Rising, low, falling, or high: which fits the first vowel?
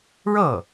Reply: falling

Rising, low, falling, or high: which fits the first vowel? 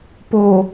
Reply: low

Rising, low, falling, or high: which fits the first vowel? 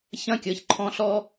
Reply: falling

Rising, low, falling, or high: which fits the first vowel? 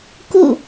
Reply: falling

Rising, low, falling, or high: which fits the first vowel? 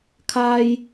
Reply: high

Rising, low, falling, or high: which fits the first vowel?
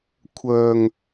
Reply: low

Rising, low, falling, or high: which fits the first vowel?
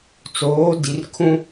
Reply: rising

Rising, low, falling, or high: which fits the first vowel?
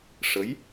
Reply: rising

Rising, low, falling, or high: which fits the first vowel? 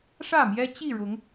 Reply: falling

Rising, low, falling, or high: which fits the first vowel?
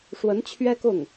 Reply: rising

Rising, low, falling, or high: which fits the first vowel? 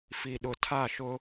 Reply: low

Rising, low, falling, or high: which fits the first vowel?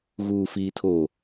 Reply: low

